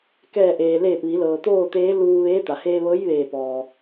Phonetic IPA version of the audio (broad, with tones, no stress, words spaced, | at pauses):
kɛː˧˩ʔeː˩ leː˧˩p̚ʋi˩˧ lɤː˩t̪oː˥˨t̪eː˧˥ luː˧ʋeː˧˥ t̪a˩heː˧ʋɤː˧˥j ʋeː˧˩pɔː˩